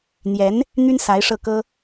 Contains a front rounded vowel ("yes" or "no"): yes